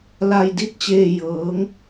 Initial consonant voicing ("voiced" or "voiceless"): voiced